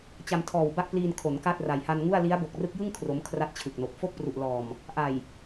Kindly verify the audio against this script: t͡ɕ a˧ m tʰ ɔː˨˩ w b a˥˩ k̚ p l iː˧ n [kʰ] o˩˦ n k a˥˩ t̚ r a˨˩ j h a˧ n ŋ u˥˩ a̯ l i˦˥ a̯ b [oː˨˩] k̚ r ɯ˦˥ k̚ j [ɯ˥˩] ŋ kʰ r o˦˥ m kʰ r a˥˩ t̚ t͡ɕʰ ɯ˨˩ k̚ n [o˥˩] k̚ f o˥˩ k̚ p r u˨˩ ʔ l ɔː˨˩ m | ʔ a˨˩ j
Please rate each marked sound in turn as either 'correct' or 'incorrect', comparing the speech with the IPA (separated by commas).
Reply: correct, incorrect, correct, incorrect